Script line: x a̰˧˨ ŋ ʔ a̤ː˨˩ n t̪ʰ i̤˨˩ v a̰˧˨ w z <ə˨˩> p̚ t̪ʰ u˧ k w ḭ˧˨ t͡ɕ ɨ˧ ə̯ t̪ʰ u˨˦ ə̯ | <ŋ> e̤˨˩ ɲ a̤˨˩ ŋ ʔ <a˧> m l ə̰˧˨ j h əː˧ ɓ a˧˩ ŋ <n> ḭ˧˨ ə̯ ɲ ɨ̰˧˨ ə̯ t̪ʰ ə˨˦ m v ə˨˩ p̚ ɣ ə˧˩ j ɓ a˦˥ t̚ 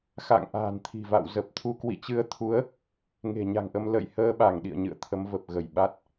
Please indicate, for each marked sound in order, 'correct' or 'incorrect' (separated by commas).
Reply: correct, correct, incorrect, incorrect